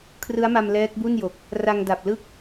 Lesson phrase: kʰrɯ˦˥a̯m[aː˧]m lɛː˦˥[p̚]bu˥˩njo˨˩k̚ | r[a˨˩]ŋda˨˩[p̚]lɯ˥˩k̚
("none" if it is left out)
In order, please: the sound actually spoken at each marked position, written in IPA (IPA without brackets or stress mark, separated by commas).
a˧, k̚, a˧, p̚